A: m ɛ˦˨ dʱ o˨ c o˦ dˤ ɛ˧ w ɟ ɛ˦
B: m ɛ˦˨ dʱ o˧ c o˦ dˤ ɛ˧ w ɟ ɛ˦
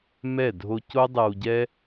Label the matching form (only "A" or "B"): B